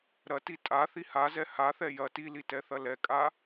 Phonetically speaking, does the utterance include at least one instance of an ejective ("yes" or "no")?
yes